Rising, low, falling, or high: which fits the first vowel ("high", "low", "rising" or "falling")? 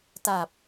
low